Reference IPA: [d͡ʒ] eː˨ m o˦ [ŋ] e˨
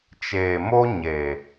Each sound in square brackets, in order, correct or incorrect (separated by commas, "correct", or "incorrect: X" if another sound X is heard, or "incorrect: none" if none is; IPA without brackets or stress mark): incorrect: t͡ʃ, incorrect: ɲ